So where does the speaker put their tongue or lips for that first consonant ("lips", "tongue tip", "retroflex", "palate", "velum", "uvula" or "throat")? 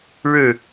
retroflex